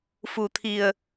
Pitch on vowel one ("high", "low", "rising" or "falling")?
low